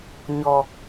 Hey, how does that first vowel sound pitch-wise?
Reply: low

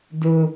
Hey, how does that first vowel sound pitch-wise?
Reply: low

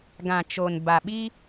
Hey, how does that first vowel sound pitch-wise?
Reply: low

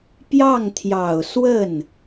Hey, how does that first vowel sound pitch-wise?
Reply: falling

